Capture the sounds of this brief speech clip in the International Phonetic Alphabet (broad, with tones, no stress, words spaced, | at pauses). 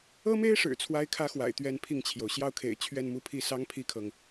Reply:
ɤ˥me˥ɪ̯ʂɻ̩˨˩ t͡sʰwa˥ɪ̯kʰä˥xwa̰˨˩ɪ̯ t̪ɥɛ˥˧npʰi˥˩ŋt͡ɕʰjo˩ʊ̯ ɕjɑ˥˩ʊ̯kʰḛ˨˩ɪ̯ t͡ɕʰɥɛ˥˧nmu˥˧pʰi˥˩sɑ˥ŋ pʰi˥kʰɤ˨ŋ